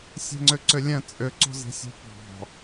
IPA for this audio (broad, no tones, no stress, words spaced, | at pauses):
sʲe̤ŋ͡ǀʏǀʏlʲɛ̃ t͡sʼʏǀo̤zi̤sʲo̤ pɑ̤